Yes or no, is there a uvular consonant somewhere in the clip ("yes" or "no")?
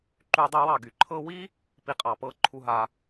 yes